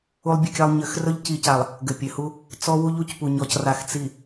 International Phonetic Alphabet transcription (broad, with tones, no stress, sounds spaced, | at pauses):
u˦ lˠ bʲ ɘ˦ kʲ a˦ lˠ ɲ ɘ˨ x r ɵ˦ ʎ c i˨ c a˨ lˠ | ɡ ɘ˨ pʲ ɘ˨ h u˦ | t͡s ɔ˦ w u˦ ʎ u˨ c p u˨ ɲ ɔ˨ c r a˨ x t͡s i˨